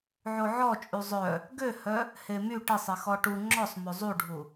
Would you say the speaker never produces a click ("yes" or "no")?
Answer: no